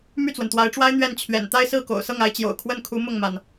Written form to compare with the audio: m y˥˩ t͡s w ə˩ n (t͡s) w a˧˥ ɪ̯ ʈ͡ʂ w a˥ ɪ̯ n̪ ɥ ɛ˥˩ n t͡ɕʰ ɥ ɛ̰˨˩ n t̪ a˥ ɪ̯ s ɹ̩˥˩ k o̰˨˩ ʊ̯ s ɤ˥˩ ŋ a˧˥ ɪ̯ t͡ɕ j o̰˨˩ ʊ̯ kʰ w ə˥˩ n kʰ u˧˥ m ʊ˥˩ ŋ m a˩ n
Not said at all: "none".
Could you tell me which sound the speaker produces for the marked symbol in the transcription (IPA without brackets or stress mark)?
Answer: t̪